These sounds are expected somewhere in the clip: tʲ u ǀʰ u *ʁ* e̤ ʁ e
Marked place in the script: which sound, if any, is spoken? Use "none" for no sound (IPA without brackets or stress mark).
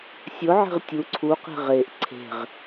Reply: q